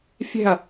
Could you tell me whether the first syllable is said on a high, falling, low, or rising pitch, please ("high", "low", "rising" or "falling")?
falling